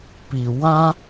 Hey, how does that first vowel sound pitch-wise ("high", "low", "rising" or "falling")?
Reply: low